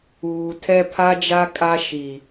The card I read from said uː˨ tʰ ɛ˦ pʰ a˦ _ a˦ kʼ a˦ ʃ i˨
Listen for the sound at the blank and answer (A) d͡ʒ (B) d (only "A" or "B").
A